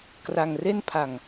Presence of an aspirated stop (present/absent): present